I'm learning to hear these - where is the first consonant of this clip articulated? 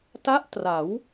tongue tip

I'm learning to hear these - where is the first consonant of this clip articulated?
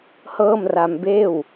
throat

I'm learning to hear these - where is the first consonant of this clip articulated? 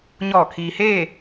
palate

